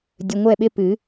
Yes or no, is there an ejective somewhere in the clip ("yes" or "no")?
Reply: no